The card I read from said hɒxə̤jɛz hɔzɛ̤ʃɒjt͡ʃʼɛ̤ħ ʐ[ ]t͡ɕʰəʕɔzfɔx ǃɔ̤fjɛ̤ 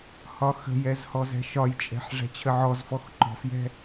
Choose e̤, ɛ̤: ɛ̤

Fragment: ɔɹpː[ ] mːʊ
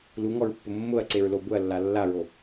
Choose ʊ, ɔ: ʊ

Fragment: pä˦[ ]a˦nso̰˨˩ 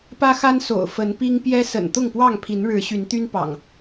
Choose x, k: x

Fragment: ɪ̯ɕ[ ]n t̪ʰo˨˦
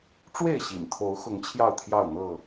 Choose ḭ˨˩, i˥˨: ḭ˨˩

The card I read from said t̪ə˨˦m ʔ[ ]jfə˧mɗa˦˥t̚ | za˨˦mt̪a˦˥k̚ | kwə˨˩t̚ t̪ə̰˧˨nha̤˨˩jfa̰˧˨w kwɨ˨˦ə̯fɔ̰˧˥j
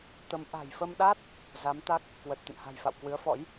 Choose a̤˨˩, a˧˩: a̤˨˩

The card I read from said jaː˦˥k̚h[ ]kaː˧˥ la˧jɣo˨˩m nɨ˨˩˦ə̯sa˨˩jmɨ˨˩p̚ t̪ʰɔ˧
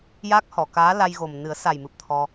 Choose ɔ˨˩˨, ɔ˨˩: ɔ˨˩˨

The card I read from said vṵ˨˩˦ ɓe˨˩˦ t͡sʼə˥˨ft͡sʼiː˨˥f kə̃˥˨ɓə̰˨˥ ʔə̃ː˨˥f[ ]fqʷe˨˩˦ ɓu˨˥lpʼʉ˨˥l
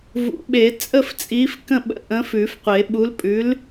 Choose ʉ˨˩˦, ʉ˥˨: ʉ˨˩˦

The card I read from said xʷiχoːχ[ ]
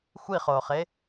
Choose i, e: e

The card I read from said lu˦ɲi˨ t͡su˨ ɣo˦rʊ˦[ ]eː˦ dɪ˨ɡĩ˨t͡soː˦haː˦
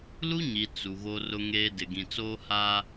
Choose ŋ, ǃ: ŋ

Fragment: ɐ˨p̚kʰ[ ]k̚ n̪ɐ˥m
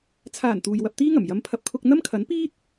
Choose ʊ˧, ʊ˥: ʊ˧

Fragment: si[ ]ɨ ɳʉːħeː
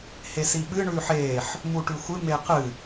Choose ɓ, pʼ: ɓ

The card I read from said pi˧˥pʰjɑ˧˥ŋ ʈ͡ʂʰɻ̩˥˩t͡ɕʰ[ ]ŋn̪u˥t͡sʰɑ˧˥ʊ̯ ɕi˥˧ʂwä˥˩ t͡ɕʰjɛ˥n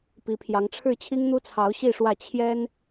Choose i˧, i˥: i˥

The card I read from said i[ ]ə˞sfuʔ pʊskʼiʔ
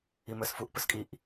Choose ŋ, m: m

